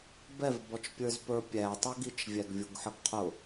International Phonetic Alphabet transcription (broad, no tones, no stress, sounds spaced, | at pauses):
b ɛ v b ɔ t͡ʃ pʲ ə˞ z p ə˞ pʲ æ tˤ ʊ ɡ i t͡ʃ vʲ æ ɡ vʲ u ɡ ħ ə ɡ qʰ ʊ